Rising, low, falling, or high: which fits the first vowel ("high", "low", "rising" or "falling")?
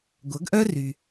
rising